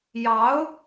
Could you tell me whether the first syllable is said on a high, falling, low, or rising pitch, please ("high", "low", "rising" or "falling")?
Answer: rising